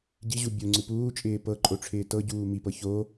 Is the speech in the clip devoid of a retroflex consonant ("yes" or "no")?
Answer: no